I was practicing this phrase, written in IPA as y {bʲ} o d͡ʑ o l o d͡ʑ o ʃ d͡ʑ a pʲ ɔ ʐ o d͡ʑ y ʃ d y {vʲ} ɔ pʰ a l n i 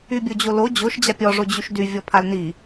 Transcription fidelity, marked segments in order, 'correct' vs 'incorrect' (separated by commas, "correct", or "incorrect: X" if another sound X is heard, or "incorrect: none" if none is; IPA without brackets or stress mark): correct, correct